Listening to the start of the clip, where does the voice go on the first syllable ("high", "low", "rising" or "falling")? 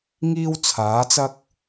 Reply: high